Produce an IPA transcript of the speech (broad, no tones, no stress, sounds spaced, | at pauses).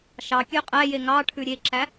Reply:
ʃ ɑ kʲ ø qʼ æ j e ŋ ɑ ʈʰ ʉ ɾʲ e ǁ æ